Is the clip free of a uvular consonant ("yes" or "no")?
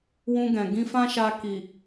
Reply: yes